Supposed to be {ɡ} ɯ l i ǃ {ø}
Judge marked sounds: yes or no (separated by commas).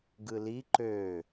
yes, yes